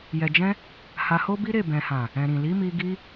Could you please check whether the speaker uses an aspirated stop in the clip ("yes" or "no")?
no